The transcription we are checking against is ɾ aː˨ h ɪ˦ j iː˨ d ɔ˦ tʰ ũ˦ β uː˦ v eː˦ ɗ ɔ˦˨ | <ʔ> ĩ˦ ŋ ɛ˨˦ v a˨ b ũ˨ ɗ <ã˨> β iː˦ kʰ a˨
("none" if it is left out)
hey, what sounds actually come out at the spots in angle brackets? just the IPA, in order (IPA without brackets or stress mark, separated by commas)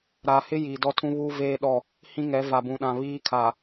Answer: h, ã˨